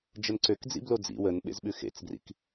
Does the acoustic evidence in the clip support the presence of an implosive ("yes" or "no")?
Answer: yes